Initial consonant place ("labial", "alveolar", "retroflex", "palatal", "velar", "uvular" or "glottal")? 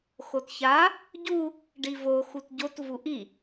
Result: velar